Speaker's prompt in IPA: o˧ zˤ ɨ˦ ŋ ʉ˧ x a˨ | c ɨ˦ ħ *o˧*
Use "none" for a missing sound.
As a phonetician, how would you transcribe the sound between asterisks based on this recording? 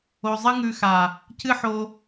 o˧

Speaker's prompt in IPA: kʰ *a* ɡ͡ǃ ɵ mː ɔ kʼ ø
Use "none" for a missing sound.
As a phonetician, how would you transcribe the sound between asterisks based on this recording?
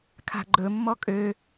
a̤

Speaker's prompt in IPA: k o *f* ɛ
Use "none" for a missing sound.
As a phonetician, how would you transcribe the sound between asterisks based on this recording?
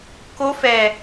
f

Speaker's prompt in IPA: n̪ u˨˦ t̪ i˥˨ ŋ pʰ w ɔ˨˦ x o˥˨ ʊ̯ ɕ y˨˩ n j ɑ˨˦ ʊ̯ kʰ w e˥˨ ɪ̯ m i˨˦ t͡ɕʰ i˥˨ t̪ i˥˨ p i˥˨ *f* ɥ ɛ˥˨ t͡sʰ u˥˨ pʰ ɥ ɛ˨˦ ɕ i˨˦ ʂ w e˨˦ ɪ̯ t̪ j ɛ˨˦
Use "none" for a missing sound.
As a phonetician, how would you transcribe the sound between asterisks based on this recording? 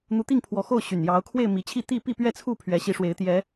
p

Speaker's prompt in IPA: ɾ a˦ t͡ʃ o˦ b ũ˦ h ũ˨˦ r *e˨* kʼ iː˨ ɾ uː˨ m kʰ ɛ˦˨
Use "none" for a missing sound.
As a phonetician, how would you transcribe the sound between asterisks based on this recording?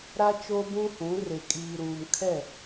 e˨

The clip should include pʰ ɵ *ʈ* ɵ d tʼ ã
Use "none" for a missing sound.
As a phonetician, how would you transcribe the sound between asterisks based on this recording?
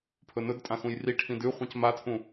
n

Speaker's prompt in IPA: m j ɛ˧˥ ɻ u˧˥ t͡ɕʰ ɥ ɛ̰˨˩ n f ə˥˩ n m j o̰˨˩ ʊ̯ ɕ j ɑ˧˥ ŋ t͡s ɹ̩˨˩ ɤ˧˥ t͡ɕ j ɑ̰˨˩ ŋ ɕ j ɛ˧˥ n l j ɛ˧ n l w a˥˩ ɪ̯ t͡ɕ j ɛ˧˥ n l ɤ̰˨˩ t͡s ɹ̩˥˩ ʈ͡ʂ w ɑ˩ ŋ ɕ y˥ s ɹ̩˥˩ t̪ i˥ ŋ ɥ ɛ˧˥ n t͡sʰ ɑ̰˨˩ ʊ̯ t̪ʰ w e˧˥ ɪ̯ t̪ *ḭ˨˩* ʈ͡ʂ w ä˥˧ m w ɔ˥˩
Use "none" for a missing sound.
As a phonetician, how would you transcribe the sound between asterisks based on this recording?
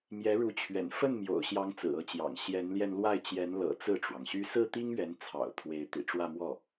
ḭ˨˩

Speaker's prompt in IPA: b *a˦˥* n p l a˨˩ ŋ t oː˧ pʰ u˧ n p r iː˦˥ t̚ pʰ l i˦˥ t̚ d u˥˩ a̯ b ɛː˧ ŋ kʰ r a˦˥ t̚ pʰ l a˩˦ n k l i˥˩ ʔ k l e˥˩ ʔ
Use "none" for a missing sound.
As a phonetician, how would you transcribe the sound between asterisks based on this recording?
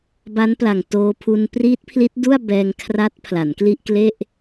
a˦˥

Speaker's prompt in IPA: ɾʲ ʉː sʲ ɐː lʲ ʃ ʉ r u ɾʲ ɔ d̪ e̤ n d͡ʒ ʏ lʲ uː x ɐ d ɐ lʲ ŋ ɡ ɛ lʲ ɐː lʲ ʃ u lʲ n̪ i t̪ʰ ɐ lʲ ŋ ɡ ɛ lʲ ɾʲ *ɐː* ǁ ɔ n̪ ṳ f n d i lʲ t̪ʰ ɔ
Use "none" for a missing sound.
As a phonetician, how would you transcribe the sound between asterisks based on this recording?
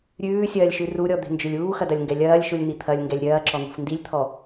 ɐː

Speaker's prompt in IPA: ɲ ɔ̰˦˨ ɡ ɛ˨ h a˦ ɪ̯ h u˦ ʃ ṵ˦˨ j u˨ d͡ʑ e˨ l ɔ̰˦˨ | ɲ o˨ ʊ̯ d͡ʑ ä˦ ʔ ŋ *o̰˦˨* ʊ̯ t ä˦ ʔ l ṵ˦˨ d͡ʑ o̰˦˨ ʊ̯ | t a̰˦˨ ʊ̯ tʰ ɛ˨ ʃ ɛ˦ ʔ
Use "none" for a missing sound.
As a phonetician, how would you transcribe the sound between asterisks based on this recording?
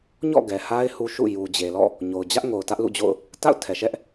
o˨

